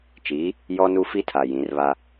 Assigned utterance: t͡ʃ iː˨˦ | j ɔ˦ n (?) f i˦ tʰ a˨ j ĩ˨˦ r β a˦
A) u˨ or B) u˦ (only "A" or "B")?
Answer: B